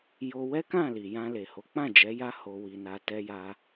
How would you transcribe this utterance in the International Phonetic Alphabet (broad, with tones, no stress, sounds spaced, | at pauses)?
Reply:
j o˧ w ɛ˦ k ã˦˨ l i˨ j ã˧ l e˨ h o˨˦ k͡p ã˦˨ d͡ʒ ɛ˨˦ j a˦ h o˧ w i˧ n a˧ t ɛ˦ j a˦